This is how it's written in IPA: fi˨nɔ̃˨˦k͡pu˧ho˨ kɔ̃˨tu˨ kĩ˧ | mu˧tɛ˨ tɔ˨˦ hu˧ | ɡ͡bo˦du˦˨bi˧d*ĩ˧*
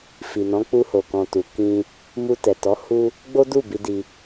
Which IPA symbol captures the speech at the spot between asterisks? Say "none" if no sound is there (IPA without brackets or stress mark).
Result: i˧